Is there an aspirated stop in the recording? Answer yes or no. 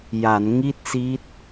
no